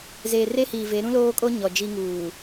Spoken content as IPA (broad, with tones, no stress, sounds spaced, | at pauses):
z eː˨ r e˦ h iː˨ v e˨˦ ɾ ũ˦ l oː˦ kʼ o˦ ɲ ɔ˨ d͡ʒ i˦ ŋ uː˨